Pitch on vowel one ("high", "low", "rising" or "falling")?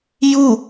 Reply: falling